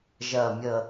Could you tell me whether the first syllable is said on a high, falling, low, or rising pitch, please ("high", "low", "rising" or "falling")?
low